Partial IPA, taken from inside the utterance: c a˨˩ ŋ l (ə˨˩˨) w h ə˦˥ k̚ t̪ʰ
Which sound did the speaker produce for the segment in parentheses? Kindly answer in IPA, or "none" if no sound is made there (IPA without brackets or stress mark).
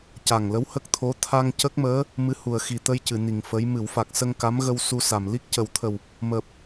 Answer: ə˧˥